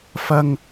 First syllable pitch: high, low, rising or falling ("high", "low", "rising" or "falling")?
high